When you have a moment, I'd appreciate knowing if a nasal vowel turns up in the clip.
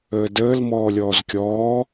no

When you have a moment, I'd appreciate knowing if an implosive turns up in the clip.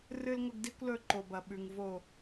yes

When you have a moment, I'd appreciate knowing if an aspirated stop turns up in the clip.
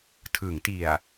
yes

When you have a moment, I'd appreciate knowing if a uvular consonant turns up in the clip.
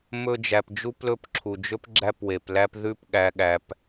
no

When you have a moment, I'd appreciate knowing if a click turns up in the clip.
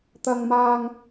no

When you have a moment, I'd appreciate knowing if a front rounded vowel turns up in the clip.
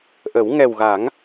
no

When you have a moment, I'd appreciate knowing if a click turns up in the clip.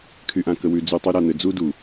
no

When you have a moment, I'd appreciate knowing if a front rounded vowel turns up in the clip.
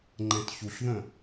yes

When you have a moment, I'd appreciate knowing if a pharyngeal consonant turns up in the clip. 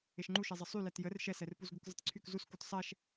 no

